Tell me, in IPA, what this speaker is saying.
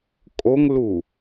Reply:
kʼ o ŋ l u

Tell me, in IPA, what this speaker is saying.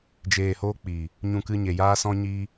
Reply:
d͡ʒ eː˧ h oː˦ k͡p iː˨ | ɲ ũ˧ k ɨ˧ ɲ e˨ j aː˦ s ɔ̃˦ ɲ iː˦

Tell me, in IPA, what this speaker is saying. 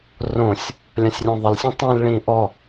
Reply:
r õ sʲ | lʲ ã sʲ rʲ õ ðˤ ɪ l sʲ ɔ̃ tˤ ĩ l ɭ ĩ ʔ ɔ

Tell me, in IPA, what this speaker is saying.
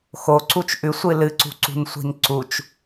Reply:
x o ǀ u t͡ʃ ʔ ʉ sʷ ɨ l ɨ ǀ ṳ ǀ ṳ n sʷ i̤ n ǀ u t͡ʃ

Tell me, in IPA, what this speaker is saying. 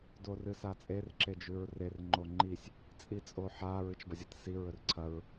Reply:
d o r ɨ s a t͡sʼ e r ǁ e d͡ʒ ʉ ɹ r e r ŋ͡ǃ o ŋ͡ǃ i sʲ | t͡sʼ i t͡sʼ o ħ a ɹ ɨ t͡ʃ b ɐ zʲ ɐ t s i ɹ ɵ r ǀʰ ɐ ɹ

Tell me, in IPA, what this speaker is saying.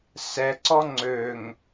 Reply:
s ɛ ǀ ɔ ŋ͡ǀ ø ŋ

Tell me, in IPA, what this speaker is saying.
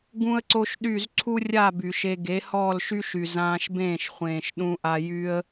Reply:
ɡ ũ˦ ə̯ ǀ o˦ ʃ ɗ y˦˨ z ǀʰ u˦ rʲ a˦˨ b y˨ ʃ e˧ ɡ e˨˦ h ɔː˦˨ l ʃ y˦ ʃ y˨ z ãː˧ ʃ b ẽː˦˨ ʃ χʷ ẽː˨ ʃ ɗ ũ˧ ʔ a˧ j y˦ ə̯

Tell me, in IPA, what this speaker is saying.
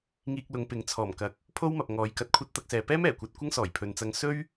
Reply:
ŋ iː˧ k̚ l ʊ˨˧ ŋ p ɪ˨ ŋ t͡sʰ ɔː˨˩ m k ɐ˨ k̚ | pʰ o˥ w m ɐ˨ p̚ ŋ ɔː˨˧ j k ɐ˧ t̚ kʷʰ ɐ˥ t̚ t̪ ɐ˧ k̚ s ɛː˨ p ɛː˥ m ɛː˨˩ kʷ ɐ˧ t̚ kʷ ɐ˥ ŋ s ɔː˨˩ j pʰ ɵ˨ n t͡s ɐ˧ ŋ s ɵ˥ ɥ

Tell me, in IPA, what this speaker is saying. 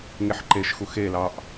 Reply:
ŋ e ħ ǃ e ʃ x u x e l ɑ ʔ

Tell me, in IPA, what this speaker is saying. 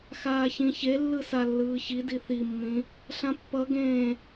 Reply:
x aː ç ĩ ç e lː ɯ s a lː ɯː ç i d i θ i mː ĩ | ɬ ã pː ʌ ɡ ẽː

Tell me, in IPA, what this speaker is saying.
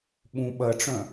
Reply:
ɓ ũ ɓ ɐ ʈ͡ʂ œ̃

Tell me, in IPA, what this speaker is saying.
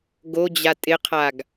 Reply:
ɡ o d͡ʑ a tʼ ɪ qʰ a ɡ

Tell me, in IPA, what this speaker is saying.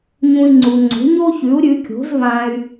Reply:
ɲ ũ˧ i̯ ŋ͡ǀ u˩ ŋ͡ǀ o̤˩˥ ɲ o˥ ç ʉ˩˥ u̯ ɾʲ ʉ˩˥ kʲ o̤˩˥ z v ã˧ y̯

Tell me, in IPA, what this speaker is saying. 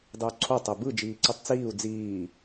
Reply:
dˤ ɯ u̯ ǀʰ o tˤ e b ɯ d͡ʒ iː ǀ i tˤ t͡s iː u̯ d͡z iː

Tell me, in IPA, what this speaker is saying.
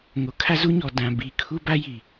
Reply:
ŋ o˨ kʰ a˦ z u˦ ɲ ɔ˨ d ã˨ b i˨ kʰ u˦ b a˦ j i˨

